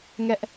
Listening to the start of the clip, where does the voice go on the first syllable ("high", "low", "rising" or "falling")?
high